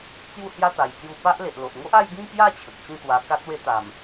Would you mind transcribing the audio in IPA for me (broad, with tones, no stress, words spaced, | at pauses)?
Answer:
t͡sju˥˧ hja˦t̪a˨˩jt͡sju˧ pa˦ʔ le˨ʔlo˨ʔŋo˦ʔ a˥˧jɡĩ˥˧kja˥˧ t͡ɕʰə˨k̚t͡ɕĩ˥˧t̪wa˧ ka˦t̚we˦t̪a˨˩m